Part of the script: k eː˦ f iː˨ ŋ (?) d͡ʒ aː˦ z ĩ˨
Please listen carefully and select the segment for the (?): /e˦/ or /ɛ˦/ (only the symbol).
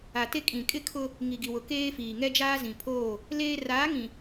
ɛ˦